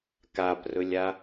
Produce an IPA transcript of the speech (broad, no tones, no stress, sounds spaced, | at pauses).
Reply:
k a p r ɵ lʲ a